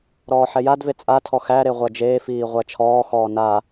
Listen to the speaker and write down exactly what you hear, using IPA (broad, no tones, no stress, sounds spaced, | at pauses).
ɾ ɔː ħ ɛ j a d v e t͡sʼ a tʰ ɔ x æ ɾ e ʁʷ æ d͡ʒ eː f iː ʁʷ æ t͡ʃʰ ɔː x ɔː n a